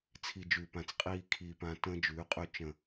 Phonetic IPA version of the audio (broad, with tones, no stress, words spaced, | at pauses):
t͡sʰi˨ d͡ʒʉː˨pã˨t͡s qʼiː˨ kʰiː˨pã˨ tə̃ː˧d͡ʒʉː˨˦qʼʉ˧ t͡ʃə̃˨